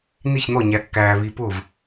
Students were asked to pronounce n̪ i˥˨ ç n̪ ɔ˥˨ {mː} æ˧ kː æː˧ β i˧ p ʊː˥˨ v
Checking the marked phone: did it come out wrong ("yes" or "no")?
yes